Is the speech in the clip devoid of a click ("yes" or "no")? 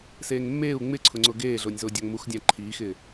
no